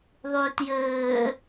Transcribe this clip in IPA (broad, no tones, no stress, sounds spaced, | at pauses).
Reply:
ðˤ ʉː t j ɘː